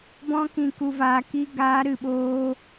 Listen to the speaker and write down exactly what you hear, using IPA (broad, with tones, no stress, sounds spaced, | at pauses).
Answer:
b ɔ̃˧ k ĩ˨ k u˨ v aː˨ k i˧ ɡ aː˨˦ ɾ ɨ˨ ɓ oː˧